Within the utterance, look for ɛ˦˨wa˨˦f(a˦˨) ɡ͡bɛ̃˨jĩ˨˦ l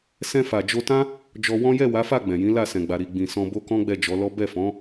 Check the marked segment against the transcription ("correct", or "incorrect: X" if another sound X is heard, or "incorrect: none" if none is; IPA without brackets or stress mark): correct